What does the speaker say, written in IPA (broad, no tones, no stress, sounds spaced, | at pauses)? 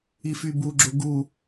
i f y b u ɡ͡ǁ o ɡ u